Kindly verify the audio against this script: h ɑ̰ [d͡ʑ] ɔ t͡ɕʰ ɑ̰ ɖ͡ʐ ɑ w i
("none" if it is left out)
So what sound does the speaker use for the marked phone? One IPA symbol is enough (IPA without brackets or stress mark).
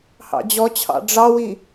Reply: d͡ʑ